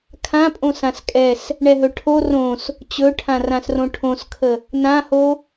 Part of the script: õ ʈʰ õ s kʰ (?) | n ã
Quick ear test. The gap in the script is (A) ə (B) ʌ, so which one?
A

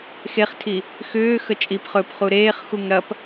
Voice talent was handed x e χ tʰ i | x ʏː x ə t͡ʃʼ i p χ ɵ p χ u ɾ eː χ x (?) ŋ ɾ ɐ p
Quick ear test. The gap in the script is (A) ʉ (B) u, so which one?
B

